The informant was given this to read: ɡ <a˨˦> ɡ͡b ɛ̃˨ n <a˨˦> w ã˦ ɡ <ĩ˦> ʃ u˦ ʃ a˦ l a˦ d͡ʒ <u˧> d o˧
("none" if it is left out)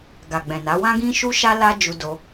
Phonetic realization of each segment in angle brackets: a˨, a˨˦, ĩ˦, u˧

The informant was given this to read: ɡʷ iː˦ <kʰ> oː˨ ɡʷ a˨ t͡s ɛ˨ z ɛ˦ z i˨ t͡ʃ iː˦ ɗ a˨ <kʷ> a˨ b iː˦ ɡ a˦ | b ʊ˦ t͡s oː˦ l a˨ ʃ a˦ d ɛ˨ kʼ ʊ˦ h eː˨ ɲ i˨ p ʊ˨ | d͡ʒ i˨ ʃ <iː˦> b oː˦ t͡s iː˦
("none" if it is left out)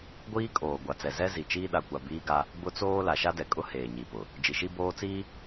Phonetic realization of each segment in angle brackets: kʼ, kʷ, i˦

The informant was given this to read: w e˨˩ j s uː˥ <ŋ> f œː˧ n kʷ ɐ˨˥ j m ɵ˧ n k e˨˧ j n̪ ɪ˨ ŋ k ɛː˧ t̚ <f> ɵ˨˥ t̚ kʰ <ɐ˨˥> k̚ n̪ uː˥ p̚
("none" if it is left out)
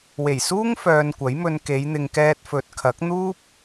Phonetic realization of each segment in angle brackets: ŋ, f, ɐ˨˥

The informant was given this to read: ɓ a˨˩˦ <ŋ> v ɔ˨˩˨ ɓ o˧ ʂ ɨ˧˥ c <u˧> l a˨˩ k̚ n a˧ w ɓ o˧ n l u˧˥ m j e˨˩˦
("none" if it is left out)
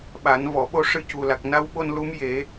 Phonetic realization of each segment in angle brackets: n, u˨˩

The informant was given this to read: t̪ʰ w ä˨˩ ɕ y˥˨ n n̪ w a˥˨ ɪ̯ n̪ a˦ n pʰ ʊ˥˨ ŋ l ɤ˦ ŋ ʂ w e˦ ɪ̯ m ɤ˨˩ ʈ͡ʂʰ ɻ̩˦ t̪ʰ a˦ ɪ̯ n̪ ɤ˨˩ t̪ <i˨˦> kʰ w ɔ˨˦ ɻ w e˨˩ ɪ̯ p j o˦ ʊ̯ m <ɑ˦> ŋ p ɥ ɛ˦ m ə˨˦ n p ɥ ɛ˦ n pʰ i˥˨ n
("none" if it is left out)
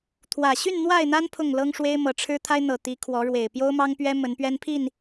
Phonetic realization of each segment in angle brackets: i˨˦, ɑ˦

